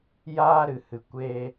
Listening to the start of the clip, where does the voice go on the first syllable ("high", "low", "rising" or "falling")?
high